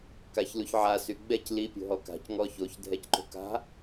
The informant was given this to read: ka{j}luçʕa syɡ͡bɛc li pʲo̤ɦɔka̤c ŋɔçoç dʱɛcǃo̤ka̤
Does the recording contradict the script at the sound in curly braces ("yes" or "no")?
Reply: yes